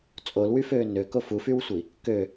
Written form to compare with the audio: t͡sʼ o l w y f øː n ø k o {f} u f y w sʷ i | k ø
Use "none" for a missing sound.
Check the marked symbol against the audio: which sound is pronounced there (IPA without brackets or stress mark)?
f